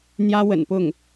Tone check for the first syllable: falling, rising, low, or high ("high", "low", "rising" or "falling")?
high